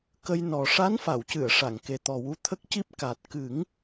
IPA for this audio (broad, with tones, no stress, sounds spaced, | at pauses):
k ə˧ j n ɔ˨˩ ʂ a˧˥ n f a˨˩˨ w c ɨ˨˩˨ ə̯ ʂ a˨˩˨ ŋ k e˨˩ t̪ ɔ˨˩ w u˧˥ t̪ʰ ə˦˥ k̚ c i˦˥ p̚ k a˨˩ t̚ k ɨ˨˩˦ ŋ